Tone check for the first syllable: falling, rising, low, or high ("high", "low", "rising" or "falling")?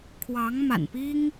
rising